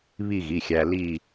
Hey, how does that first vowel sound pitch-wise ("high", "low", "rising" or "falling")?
falling